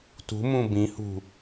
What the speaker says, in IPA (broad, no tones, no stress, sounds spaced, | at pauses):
t ṳ m ũ b ĩ h ṳ